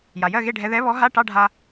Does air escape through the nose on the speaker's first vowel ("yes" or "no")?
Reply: no